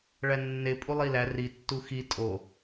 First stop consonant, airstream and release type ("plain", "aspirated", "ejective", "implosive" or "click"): ejective